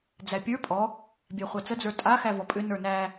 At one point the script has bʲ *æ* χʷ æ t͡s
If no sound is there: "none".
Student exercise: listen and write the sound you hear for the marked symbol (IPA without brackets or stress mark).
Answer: æ